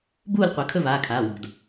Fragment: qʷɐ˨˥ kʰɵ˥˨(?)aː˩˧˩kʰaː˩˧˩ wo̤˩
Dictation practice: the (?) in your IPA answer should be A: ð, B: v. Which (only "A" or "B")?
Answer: B